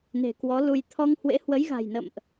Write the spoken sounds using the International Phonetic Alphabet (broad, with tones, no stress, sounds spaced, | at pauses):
n e̤˨˩ k w ɔ˨˦ l u˧ j t̪ʰ ɔ˧ ŋ h w ḛ˧˥ h w ə˨˦ j ɣ a̤˨˩ j n ə̰˧˨ m ʔ